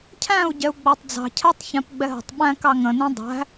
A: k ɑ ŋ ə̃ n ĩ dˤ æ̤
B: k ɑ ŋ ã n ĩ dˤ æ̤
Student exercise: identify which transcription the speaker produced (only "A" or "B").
A